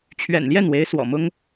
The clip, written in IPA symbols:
t͡ɕʰ ɥ ɛ̰˨˩ n l j ɛ˥˩ n w e˧˥ ɪ̯ s w ɔ̰˨˩ m ʊ˥ ŋ

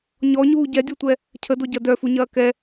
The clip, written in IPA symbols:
ɲ ɔ ɲ uː ɟ ɛ dʲ ɔ tʷ ɛ | cʰ ə d o ɟ ɐ d œ f u ɲ ɐː k ɛ

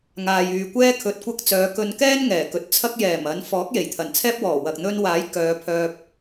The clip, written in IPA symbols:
ŋ aː˨ j yː˨ kʷ ɛː˥ kʰ ɵ˧ t̚ kʷ ɐ˥ k̚ t͡s œː˨˧ k ɵ˧ n k ɛː˥ n ŋ ɛː˨˩ k ɵ˨ t̚ t͡sʰ ɐ˥ k̚ j ɛː˨˩ m ɐ˨˧ n f ɔː˨˥ k̚ j e˨˩ j t̪ʰ ɐ˨˩ n t͡sʰ ɛː˥ p̚ w ɔː˨˩ w ɐ˨ k̚ n̪ ɵ˥ n w aː˨˥ j k œː˨˧ pʰ œː˧ p̚

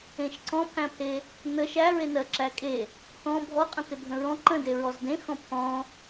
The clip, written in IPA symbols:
ẽ ʃ ǀ ɔ̃ pʰ æ̃ pʰ e | n ə ʃ æ ɹ e n ɜ ǁ æ kʼ e | t ɔ̃ bʱ ɔ qʼ ə̃ t e bʱ ə̃ ɹ ɔ̃ ǃ ə̃ d e ɹ ɔ z d ẽ x ɔ̃ pʰ ɔ̃

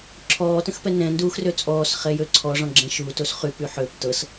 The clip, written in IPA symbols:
ǁʰ ɔː t ə̃ x p ɛ n ɛ̃ n d uː x r ø t͡sʼ ɔː s χ ɛ j ø ǀʰ ɔ ʐ ɔ̃ ɡ͡ǁ ɛ̃ ʃ u t o s χ y p y ħ ø p t ɤ s

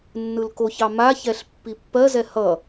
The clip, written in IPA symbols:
nː ɯ l k o ç ɑ m a ç ɛ ɬ pː i pː ɜ z ɛ h ʌ

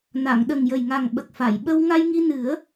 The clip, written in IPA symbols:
n a˨˩˨ ŋ ɗ ə˨˩ ŋ j ə˨˩ j ŋ a˨˩ ŋ ɓ ə˨˩ k̚ f a˨˩˨ j ɓ ə˧ w ŋ a˧ j ŋ i˧ n ɨ˨˩˦ ə̯

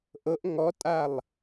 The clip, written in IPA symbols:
ʔ ɤ ʔ ŋ ɔ tʼ a lˠ

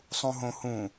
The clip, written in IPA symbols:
sˤ ũ ɦ õ h ũ

